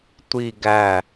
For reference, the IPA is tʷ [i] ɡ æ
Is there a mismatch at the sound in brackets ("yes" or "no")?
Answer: no